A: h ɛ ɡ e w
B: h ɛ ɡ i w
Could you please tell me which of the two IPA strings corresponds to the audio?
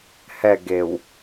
A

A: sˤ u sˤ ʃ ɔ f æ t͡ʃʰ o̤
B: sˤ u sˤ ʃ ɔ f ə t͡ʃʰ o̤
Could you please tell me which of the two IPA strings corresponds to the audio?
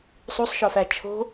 A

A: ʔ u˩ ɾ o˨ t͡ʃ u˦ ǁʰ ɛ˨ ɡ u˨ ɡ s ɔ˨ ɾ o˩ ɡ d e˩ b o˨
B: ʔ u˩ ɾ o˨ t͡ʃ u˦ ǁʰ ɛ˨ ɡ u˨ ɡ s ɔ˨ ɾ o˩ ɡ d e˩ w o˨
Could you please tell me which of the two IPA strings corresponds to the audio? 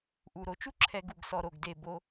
A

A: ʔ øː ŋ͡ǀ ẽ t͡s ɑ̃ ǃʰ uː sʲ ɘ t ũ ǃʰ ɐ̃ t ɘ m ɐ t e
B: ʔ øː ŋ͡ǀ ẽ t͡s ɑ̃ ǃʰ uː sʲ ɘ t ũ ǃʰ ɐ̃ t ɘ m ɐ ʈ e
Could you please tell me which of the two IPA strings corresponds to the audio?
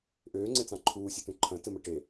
B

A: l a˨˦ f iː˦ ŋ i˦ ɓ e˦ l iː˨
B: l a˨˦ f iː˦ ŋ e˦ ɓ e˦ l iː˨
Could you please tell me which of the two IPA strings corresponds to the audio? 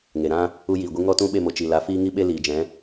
A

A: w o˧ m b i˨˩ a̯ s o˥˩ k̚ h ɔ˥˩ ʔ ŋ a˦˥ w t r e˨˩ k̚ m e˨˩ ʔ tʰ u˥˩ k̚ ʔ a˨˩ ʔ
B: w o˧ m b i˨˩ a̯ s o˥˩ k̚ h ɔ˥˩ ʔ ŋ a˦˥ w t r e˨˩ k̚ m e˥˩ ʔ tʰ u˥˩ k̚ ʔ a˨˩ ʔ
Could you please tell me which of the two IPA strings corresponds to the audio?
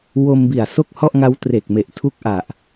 A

